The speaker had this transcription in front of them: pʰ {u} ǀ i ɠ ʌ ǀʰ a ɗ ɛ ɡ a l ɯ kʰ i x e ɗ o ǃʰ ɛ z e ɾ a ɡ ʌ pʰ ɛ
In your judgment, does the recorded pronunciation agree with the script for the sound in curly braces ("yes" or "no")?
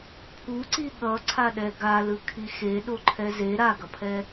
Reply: yes